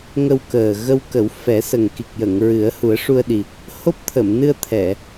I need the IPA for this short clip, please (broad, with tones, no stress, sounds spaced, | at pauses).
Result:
ŋ ə˧ w k əː˨˩ ɣ ə˧ w k ə˨˩˦ w f ɛ˨˩˦ s ə˨˩ ŋ k i˨˩ k̚ j ə˨˩˨ ŋ ɹ ɨ˨˩˦ ə̯ h u˨˩˦ ə̯ ʂ u˧ ə̯ ɗ i˨˩ | h o˦˥ p̚ t̪ʰ ə˨˩˨ m n ɨ˧ ə̯ t̪ʰ ɛ˨˩˨